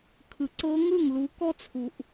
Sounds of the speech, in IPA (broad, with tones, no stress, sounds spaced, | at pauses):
kʰ ɯ˨ ǀ ɤ˦˥ ŋ ɯ˥˩ ŋ l u˨˥ k ɔ˦˥ t͡sʰ u˨ ʔ